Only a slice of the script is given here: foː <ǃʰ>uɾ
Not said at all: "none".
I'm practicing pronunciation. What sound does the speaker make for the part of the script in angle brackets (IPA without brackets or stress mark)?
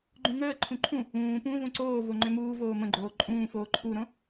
ǃʰ